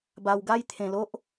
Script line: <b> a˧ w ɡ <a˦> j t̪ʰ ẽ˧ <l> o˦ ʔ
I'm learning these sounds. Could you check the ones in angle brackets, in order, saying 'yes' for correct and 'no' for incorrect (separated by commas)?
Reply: yes, yes, yes